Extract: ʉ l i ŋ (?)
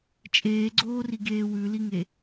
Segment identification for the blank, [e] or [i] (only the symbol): e